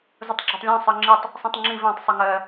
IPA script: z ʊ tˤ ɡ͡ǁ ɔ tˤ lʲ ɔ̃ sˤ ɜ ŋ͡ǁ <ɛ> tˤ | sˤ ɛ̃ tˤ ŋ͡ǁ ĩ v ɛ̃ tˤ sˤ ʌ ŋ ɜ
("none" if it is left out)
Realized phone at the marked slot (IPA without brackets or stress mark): ɪ